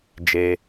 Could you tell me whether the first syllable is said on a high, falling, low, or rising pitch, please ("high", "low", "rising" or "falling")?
low